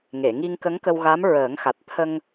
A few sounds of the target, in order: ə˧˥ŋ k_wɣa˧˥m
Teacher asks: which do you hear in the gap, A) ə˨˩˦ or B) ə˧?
B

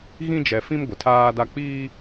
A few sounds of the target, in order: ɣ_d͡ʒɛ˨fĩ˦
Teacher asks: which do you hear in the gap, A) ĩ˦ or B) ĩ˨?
A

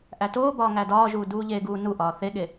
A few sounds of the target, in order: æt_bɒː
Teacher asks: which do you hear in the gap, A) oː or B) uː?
A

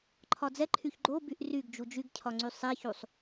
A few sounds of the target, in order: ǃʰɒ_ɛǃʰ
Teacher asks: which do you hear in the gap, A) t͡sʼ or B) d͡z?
B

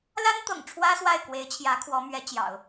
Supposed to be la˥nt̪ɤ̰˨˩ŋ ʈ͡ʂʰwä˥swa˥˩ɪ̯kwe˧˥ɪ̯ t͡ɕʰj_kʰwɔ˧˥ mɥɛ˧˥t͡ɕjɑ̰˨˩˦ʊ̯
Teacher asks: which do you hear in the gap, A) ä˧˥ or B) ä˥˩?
A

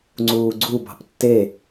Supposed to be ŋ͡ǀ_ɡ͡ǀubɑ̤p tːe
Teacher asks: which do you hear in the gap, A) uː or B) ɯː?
A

